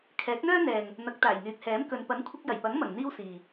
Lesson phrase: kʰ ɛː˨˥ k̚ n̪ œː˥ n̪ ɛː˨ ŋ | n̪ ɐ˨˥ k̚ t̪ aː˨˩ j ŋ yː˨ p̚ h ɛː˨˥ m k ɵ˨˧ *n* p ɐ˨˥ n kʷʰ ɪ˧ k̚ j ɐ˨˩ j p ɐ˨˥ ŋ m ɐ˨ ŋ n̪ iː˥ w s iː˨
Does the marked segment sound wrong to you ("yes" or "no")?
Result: no